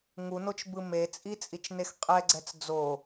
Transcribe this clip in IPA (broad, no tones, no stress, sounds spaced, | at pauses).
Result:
ŋ u n o t͡ʃ b ɯ m e t͡sʼ i t͡sʼ i t͡ʃ n e x qʼ ɛ ɡ͡ǀ ɛ t͡s d͡z o